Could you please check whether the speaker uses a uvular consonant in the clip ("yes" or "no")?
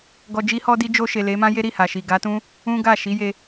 no